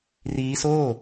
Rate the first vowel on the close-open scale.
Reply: close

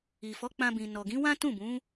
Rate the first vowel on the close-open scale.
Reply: close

